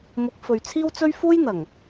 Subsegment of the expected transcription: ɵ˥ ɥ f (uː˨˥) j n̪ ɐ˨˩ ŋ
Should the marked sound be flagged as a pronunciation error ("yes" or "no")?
yes